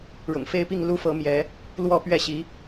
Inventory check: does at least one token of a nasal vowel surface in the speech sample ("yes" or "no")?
no